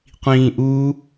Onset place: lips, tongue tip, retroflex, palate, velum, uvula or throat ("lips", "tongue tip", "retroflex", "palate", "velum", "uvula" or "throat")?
uvula